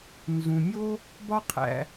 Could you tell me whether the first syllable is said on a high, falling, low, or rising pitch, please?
low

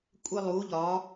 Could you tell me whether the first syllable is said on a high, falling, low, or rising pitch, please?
high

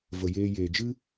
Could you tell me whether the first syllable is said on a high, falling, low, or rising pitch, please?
low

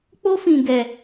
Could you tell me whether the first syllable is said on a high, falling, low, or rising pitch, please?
high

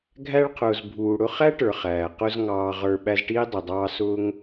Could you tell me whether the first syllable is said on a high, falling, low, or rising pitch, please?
high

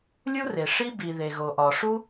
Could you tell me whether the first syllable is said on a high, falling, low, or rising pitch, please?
high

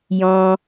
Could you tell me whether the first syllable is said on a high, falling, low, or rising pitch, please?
high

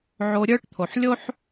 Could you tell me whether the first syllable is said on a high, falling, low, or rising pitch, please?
low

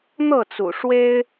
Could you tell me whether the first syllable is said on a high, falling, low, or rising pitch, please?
falling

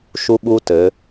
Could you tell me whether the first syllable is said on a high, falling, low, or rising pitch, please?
high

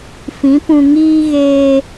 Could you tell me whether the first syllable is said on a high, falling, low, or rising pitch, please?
rising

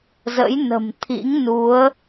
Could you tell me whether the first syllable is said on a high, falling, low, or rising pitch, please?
rising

